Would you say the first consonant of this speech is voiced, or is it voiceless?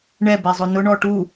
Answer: voiced